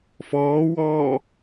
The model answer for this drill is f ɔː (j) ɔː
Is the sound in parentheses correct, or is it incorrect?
incorrect